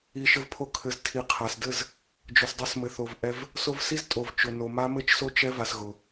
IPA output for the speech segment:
i˨ ʃ ɘ˧ v pʰ o˧ kʰ ɘ˨ z tʰ i˨ qʰ a˨ s d ɘ˦˨ z | d͡ʒ ʊ˨ s dˤ ɘ˧ s m ɘ˨ θ o˨ v ʔ ɛ˧ v | s o˧ v s i˦ z tʼ o˨ v t͡ʃ ʊ˨ n o˨ m a˦ m ɘ˦ t͡ʃ s o˦ t͡ʃ ɛ˦ v a˧ s ɣ ʊ˨

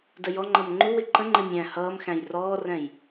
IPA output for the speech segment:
d ə j ɔ ŋ͡ǃ ʌ m ŋ͡ǃ u w ɪ ǃ ə̃ ŋ͡ǃ ɪ mʲ æ̃ h ʌː m x æ̃ j r ɔː r ɛ̃ j

